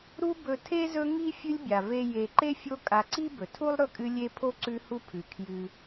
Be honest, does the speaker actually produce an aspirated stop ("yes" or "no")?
yes